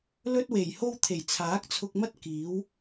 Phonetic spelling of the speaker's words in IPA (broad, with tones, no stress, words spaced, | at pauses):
lɵ˥t̚we˨˩jho˥wt̪ʰe˨˩j t͡sʰaː˨˥k̚t͡sʰʊ˧k̚mɐ˥t̚ kiː˨˥w